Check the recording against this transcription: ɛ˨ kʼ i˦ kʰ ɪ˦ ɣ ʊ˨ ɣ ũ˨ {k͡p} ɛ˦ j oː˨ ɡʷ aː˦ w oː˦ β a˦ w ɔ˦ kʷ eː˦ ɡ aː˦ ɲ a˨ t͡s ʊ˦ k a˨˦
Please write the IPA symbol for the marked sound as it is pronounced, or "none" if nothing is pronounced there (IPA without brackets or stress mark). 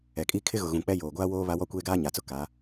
k͡p